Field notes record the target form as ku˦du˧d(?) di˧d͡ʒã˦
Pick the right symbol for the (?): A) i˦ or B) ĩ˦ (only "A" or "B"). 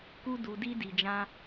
A